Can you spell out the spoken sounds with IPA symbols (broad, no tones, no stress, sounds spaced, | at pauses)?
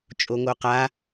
t͡ʃʼ o ŋ o q a